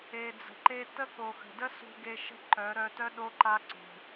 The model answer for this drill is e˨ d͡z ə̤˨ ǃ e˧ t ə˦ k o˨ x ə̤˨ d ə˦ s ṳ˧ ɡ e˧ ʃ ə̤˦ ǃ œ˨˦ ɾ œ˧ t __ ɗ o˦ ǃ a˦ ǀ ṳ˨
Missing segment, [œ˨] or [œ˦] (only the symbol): œ˦